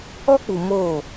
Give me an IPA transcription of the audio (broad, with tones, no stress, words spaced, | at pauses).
ɔ˦k͡pu˨ moː˦˨